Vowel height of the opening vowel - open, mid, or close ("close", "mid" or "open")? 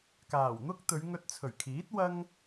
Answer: open